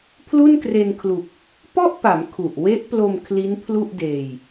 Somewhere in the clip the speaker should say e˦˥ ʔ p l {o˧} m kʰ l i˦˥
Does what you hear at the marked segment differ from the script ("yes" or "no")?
no